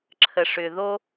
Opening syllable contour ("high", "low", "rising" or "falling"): low